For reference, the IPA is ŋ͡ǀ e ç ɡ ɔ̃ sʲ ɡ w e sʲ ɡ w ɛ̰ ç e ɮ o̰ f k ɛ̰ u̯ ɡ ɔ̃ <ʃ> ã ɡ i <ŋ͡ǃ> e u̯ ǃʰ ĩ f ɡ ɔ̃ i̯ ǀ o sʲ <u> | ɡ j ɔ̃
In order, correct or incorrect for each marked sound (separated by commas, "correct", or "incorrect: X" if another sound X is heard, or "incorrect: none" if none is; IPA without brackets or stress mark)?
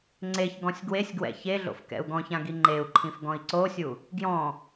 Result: incorrect: ç, correct, correct